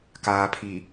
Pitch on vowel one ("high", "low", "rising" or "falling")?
low